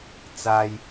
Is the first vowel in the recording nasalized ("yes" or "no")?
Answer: no